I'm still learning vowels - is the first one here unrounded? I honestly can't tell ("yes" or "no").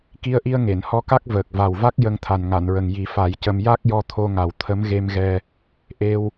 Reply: yes